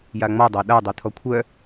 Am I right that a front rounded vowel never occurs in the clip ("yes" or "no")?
no